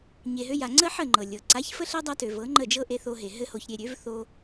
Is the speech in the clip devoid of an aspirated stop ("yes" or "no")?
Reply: yes